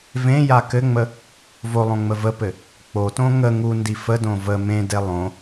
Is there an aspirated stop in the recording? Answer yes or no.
no